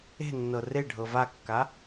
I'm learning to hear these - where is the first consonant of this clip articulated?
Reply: tongue tip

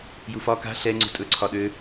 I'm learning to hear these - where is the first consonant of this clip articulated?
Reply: palate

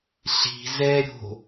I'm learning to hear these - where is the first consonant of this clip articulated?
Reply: tongue tip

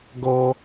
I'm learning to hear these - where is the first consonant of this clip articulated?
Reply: velum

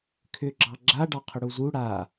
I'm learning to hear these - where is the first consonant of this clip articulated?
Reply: velum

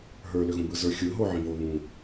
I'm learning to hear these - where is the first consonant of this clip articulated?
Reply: throat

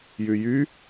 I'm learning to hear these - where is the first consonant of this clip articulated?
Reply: palate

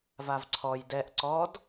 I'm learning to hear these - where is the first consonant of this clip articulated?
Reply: lips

